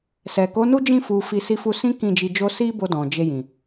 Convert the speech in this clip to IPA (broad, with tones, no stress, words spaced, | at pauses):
sɛ˨ko˨˦nu˦d͡ʒĩ˦˨ fu˧fi˧ si˧fu˧sĩ˦ kĩ˦˨d͡ʒi˧d͡ʒo˦ si˦bo˧ dɔ̃˨d͡ʒe˧jĩ˨